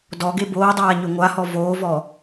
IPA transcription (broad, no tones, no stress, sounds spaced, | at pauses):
d ɔ ɡ e b oː dˤ aː ɲ ʏ ŋʷ a h ɔ v oː v ɔ